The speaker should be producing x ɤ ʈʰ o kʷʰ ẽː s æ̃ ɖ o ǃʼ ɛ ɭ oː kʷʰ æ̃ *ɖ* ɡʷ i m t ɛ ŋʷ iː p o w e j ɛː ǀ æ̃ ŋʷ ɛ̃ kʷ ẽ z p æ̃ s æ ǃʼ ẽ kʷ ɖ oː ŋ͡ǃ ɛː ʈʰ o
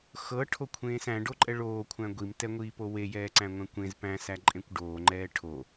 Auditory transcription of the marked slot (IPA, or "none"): none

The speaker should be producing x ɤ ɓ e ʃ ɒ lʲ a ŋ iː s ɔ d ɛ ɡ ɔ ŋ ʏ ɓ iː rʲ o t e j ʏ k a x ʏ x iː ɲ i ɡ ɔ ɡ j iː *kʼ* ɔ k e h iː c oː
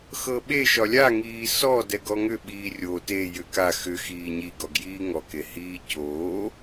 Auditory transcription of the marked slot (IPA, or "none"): ŋ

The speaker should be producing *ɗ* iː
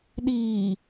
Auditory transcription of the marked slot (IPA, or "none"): ɗ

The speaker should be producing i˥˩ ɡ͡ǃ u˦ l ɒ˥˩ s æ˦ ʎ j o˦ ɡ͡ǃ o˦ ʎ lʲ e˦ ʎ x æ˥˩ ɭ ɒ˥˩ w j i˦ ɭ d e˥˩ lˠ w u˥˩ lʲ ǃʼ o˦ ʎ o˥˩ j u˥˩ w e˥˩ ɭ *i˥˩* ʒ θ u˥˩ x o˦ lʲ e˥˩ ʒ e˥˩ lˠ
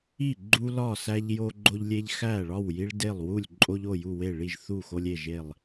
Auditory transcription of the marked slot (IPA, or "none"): i˥˩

